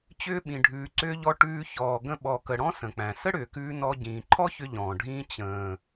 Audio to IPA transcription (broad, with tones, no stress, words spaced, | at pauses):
t͡ɕʏː˧ɓĩ˨ ɖʱʉː˨ǀʏː˧ʎɔ˧ ʈʉː˧ çɔː˨ɡə̃˧ ɓɔ˨kə˨ɽɔ̃˦ sə̃˨k͡pæ̃˨ sə˦ɽʏː˨kʉː˧ nɔ˧ ɟĩː˨ǃʰɔ˦çʏ˧ ʎɔ̃ː˨ɖʱĩː˦ t͡ɕə̃ː˨